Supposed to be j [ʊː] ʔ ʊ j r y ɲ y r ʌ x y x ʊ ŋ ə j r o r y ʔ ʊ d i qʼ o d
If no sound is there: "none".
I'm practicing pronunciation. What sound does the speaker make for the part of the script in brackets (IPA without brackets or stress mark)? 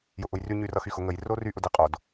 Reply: ʊ